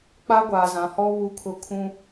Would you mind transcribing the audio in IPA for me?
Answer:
k͡pa˦ ɡʷaː˨zã˨˦hɔ˦ βu˦kʰʊ˦ kʰũ˦

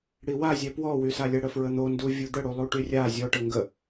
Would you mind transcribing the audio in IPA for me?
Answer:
ɽiwazʲɛ pwɔwysalʲɛ ɽəfɹən̪o nduvʲud̪əɽu lˠuʈyrʲa zʲɔʈə ŋɡə

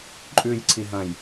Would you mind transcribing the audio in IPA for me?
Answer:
ǃʼʉj ǀʰiɦɐ̃j

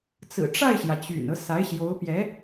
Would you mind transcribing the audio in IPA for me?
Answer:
t͡sɹ̩˨˩ʈ͡ʂa˥˩ɪ̯ɕjä˩ t͡ɕy̰˨˩nɤ˦ sa˧˥ɪ̯ɕjo˧˥ʊ̯pjɛ˧˥

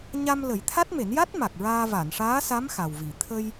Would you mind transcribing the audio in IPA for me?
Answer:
ɲa˧m lə˨˩˦jt̪ʰa˦˥t̚me˨˩˦nja˦˥t̚ ma˨˩k̚ɹaː˧ va˨˩˨nʂaː˧˥sa˧˥m xa˨˩wvi˨˩˨ t̪ʰə˧j

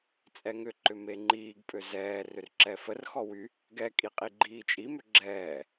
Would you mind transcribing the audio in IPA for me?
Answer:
t͡sʼɛŋʏǃʏ meŋ͡ǃiːɡpʼø zɛː rʏrǁɛfərxɔ wy | ɡɛkʼi qʼiɡ͡ǃiːt͡ʃʼimʏ ɡ͡ǁɛː

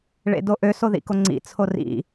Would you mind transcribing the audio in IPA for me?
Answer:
ɭḛdoʔø soðḭkoŋ͡ǀḭ t͡sʰorḭ

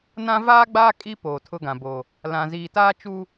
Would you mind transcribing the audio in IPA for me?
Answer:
nã˦ vaː˦ɡ͡baː˦ kʼi˦ poː˨tʰʊ˦ɡã˨bo˨ | lã˨ziː˨taː˦ t͡ʃu˦

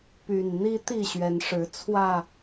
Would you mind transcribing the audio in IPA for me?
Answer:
py˨˩nn̪i˦t̪i˥˨ ɕɥɛ˨˦nʂɻ̩˨˦ t͡sʰwä˥˨

